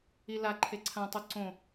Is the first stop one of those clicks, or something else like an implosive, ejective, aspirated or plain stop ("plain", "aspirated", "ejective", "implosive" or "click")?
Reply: click